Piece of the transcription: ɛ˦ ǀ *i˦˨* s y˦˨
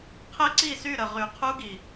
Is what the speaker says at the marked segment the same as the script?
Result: yes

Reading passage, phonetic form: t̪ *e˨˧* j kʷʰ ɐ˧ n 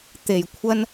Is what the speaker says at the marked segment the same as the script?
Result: no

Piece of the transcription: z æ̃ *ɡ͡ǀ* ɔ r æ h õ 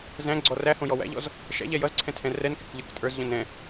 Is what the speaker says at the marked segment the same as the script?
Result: yes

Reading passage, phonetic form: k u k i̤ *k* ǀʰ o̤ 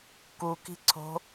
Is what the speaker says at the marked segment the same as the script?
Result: no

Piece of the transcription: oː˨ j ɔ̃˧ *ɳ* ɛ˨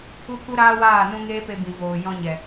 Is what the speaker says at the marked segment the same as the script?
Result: no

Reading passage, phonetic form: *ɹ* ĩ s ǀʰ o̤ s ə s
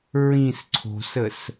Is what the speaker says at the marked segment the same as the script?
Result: yes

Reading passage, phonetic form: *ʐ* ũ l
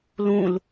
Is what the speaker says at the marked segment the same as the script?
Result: no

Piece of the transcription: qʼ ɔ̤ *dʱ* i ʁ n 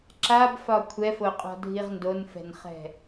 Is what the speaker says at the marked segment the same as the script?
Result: yes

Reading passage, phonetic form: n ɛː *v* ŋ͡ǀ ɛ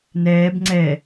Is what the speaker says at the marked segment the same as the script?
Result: no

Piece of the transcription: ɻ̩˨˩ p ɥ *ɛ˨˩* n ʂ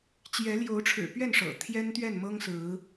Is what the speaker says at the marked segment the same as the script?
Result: no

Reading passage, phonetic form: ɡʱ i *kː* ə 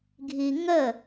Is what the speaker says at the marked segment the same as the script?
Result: no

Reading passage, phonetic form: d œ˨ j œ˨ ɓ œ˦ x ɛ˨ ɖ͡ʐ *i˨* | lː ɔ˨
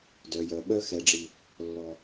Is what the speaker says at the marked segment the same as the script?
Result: yes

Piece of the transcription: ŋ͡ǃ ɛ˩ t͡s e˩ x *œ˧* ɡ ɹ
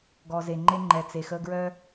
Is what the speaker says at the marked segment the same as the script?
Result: no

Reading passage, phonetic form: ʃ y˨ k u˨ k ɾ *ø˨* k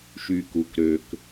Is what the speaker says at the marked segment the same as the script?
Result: yes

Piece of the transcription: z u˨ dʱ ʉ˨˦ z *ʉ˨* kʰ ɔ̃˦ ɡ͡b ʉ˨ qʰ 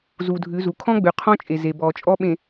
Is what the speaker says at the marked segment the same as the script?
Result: no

